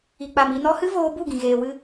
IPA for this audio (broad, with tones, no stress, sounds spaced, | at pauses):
i˨ k͡p a˨ m i˧ n ɔ˦ h ɨ˦ v oː˧ b u˦˨ ɡ ĩ˨ ɣ eː˨ w ɨ˧